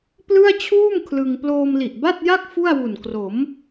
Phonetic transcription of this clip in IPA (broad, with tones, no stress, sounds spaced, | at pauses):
p l ɯ˥˩ a̯ t͡ɕʰ uː˥˩ m kʰ l ɯ˧ ŋ p l oː˧ m l i˨˩ ʔ b a˥˩ t̚ j a˥˩ k̚ f u˥˩ a̯ w u˨˩ n k r o˩˦ m